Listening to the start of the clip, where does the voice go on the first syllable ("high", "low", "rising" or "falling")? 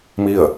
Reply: falling